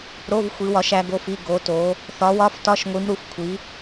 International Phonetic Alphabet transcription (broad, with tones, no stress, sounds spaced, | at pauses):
ɾ o˧˥˧ v xʷ i˨˦ w ɒ˨˦ ʃ æ˨˦ ɡ o˧˥˧ f i˧˥˧ ɡ o˨˦ t o˨˦ | θ ɒ˨˦ w ɒ˧˥˧ f t ɒ˧˥˧ ʃ ŋʷ i˨˦ m ɾ u˨˦ f kʷʰ i˨˦